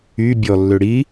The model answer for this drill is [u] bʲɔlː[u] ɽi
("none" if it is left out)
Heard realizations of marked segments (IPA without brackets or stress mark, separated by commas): y, ø